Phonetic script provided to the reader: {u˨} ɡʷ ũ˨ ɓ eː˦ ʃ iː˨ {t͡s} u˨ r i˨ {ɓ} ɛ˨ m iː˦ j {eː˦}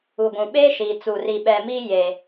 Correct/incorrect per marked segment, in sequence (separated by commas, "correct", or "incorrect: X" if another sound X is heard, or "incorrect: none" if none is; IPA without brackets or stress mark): correct, correct, correct, correct